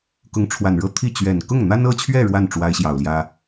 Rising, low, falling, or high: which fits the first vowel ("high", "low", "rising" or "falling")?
rising